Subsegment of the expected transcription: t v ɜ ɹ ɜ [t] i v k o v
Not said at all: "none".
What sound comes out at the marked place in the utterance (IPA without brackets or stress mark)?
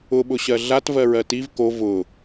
t